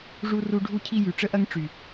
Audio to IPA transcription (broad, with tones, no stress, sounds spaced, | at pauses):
ʐ u˧ r u˧ ɖʱ u˦ cʰ i˦ j y˨ ʈ͡ʂ ə˦ ʔ ɐ˦ ŋ ʈ͡ʂ y˨